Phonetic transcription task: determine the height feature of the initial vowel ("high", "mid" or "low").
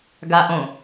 low